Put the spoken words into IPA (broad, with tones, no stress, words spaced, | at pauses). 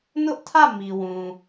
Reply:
nʊ˦ʔtʰä˦˨ mi˨wũ˨